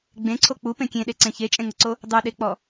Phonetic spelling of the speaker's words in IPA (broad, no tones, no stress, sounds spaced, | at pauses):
ɡ͡b ẽ ǀʰ o k͡p u p ẽ kʲ ẽ ɗ e ǀ ẽ ç e t͡ʃʼ ẽ ŋ ə ǀ o | dˤ ʉ ɗ e k͡p ɔ